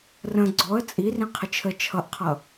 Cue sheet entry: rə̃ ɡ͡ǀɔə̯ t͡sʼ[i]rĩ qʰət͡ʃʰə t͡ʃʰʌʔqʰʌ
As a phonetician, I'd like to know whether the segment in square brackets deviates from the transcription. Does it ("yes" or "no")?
no